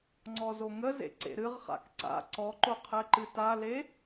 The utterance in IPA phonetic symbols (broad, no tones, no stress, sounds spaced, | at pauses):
ŋ͡ǀ ɔ z o ŋ ə z ḛ ǀ ḛ ɾ ɨ ʁ χ a̰ k ǀ a̰ ǀ ɔ ǃ o qʰ ɛ ǃ ɨ t a l e